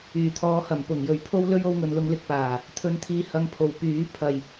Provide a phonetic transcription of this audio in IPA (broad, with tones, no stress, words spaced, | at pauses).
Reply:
yː˨˩t̪ʰɔː˨˧hɐ˨˩m pʊ˨˩ŋjɵ˨˩ɥpʰo˥w lɵ˥ɥo˧wŋɵ˨nlʊ˧ŋ lɪ˧k̚paː˨˩ | t̪ʰɵ˧nt̪ʰiː˧hɐ˧ŋpʰo˨˩w pyː˨˥pʰɐ˨j